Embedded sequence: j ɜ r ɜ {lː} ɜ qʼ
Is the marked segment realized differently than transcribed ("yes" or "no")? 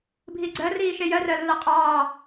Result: no